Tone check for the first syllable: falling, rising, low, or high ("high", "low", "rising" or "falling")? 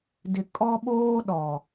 low